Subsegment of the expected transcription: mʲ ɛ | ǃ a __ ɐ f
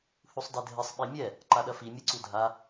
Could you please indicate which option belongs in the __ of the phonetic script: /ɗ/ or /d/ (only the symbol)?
ɗ